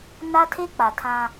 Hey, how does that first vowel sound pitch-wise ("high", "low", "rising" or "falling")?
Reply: high